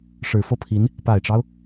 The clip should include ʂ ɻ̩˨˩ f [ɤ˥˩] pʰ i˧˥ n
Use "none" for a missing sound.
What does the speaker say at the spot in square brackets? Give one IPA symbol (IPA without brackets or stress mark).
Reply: ɤ˥˩